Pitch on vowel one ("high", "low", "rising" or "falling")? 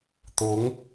rising